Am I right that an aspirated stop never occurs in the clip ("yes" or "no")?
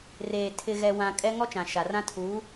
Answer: no